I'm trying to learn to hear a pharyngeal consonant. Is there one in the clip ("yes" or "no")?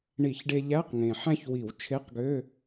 yes